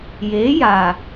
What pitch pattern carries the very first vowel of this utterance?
rising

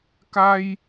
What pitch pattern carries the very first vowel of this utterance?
high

